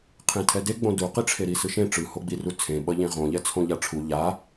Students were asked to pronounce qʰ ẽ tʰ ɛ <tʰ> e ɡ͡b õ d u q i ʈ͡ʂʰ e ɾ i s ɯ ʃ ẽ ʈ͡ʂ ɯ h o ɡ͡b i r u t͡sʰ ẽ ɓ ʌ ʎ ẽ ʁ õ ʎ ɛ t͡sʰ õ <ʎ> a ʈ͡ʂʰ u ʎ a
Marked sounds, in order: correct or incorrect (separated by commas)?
incorrect, correct